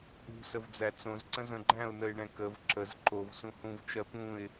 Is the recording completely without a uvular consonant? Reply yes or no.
yes